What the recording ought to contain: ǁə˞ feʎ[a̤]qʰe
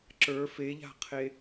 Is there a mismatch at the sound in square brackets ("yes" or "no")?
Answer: no